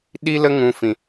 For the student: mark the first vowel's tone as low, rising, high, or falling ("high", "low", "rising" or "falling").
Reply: high